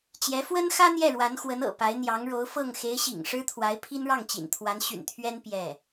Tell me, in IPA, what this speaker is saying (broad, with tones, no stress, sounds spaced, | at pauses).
t͡ɕ j ɛ˧˥ f w ə˥ n x ä˥ n̪ j ɛ˥˩ ɻ w a˧˥ n x w ə˧˥ n ɤ̰˨˩ p a˧˥ ɪ̯ n̪ j ɑ˧˥ ŋ ɻ o˧˥ ʊ̯ f ɤ˥˩ ŋ x e˧˥ ɪ̯ ɕ ḭ˨˩ ŋ ʂ ɻ̩˥ t̪ʰ w a˧˥ ɪ̯ pʰ i˥ n ɻ ɑ˥˩ ŋ t͡ɕ ḭ˨˩ n t̪ʰ w a˧˥ n ɕ y̰˨˩ n t̪ʰ ɥ ɛ˥ n p j ɛ˥˩